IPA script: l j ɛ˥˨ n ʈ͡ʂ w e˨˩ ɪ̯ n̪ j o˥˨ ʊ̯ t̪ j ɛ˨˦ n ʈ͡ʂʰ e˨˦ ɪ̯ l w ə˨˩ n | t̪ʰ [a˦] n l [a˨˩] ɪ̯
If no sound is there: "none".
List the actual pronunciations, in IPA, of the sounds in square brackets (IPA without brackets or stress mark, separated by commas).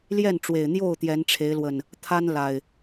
a˦, a˨˩